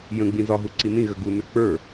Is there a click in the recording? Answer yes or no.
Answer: yes